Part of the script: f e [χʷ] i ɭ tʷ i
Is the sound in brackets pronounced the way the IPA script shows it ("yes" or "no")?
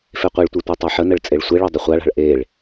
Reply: no